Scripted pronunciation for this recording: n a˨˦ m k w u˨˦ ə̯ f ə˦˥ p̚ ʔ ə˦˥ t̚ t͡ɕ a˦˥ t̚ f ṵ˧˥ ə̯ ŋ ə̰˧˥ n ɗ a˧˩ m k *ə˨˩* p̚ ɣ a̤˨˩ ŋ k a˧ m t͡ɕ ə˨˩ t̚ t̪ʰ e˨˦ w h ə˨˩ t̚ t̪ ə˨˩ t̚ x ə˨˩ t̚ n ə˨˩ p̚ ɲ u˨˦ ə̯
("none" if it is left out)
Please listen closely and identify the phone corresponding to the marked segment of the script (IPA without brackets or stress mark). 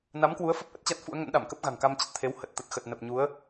ə˦˥